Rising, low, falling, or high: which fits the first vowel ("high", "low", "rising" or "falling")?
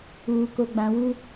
low